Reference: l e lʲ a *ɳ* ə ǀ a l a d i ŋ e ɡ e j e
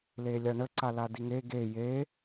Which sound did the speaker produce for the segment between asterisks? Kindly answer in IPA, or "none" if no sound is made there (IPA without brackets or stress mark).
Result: ɳ